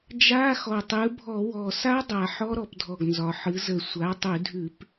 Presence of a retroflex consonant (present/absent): absent